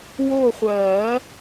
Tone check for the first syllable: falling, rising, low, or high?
falling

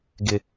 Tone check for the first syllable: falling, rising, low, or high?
high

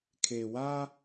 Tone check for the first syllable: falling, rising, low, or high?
low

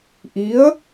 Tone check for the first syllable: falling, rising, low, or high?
rising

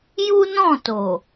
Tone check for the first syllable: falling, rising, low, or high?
high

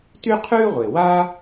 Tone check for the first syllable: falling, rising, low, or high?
high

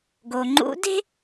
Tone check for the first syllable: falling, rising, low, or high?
low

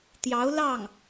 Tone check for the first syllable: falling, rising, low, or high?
rising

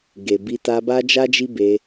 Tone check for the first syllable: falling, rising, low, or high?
low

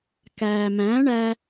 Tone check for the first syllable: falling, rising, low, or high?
low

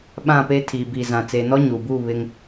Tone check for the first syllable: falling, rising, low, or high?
falling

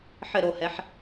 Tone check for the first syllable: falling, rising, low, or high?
falling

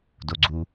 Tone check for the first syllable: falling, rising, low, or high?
low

